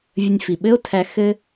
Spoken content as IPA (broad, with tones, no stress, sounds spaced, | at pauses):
vʲ ə˧ nʲ f i˩ ɓ ɘ˥ o̯ tʰ æ˧ x ɘ˧